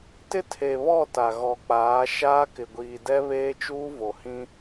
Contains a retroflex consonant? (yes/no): no